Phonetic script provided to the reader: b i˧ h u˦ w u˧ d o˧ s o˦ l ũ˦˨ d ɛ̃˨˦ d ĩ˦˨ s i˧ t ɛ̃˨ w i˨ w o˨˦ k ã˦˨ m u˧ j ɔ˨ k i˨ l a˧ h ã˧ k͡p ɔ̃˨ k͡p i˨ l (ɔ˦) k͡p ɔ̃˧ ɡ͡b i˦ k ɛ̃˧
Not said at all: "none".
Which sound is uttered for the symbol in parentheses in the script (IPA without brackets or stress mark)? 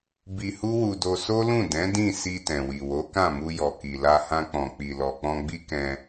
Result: ɔ˨